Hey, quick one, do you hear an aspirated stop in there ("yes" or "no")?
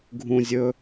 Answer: no